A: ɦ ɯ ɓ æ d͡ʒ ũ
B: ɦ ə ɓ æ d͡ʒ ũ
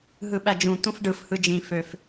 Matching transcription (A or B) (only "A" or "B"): A